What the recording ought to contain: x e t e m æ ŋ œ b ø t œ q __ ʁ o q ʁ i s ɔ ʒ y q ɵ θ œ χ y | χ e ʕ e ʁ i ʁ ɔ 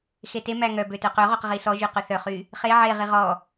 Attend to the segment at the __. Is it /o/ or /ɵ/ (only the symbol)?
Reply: ɵ